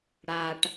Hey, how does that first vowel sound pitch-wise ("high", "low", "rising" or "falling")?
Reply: low